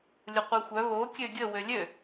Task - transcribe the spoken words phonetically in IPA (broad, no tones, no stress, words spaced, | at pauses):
lʲʊqʷexʷœ βo kʲøɡʲə wølʲø